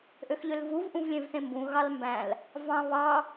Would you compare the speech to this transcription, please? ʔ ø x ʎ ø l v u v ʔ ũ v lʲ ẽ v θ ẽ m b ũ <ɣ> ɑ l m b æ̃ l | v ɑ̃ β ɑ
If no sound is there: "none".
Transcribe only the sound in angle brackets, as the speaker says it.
ɣ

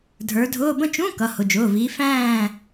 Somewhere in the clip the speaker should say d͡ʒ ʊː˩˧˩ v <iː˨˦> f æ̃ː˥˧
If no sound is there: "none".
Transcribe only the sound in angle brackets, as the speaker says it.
iː˨˦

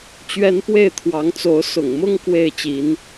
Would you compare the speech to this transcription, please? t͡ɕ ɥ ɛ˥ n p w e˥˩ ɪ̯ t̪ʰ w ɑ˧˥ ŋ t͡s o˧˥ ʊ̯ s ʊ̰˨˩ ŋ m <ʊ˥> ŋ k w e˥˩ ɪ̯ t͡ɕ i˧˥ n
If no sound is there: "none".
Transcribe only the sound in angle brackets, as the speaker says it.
ʊ˥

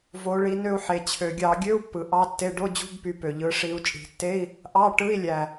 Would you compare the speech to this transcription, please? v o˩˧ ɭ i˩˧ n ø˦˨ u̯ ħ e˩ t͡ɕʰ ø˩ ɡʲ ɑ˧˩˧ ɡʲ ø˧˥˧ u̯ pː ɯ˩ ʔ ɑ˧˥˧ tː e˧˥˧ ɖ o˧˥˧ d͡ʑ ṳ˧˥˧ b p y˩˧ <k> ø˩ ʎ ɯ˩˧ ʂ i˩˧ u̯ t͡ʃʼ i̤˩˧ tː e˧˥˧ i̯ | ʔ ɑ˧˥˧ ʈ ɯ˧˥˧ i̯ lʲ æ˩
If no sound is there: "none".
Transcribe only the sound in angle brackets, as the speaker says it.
p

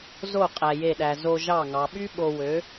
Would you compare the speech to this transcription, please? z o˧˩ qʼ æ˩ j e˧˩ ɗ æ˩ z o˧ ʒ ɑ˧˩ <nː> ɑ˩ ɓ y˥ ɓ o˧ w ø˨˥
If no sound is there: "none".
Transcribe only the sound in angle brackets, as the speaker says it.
ŋ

